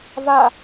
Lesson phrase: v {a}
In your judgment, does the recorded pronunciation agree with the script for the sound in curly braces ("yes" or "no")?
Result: yes